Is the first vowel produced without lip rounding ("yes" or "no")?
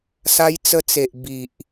yes